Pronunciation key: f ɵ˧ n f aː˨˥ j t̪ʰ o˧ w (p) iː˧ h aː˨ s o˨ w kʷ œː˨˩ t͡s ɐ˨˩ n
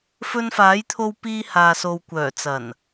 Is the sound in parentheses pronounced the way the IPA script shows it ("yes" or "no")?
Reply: yes